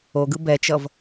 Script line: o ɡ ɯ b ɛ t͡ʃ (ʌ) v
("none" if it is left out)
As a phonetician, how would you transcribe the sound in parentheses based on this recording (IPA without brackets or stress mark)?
ʌ